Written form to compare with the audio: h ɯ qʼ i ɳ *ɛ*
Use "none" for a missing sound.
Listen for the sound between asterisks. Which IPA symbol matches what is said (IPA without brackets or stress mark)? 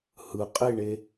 e